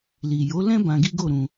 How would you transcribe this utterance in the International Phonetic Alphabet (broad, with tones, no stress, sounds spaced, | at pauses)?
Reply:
l i˨ j o˨˦ l ɛ̃˦ b ã˧ ɡ i˦ ɡ o˦˨ ɾ ũ˧